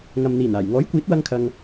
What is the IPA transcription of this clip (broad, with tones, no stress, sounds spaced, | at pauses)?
ŋ ɐ˨ m n̪ iː˨˩ n aː˨˩ j ŋ ɔː˨˥ j kʷ iː˨˥ t̚ w ɐ˧ ŋ kʰ ɐ˨ ŋ